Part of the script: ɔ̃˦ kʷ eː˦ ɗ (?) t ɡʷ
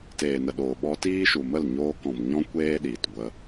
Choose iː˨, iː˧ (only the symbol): iː˨